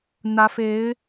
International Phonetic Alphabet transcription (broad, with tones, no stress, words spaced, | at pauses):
n̪ä˧˥fe˧˥ɪ̯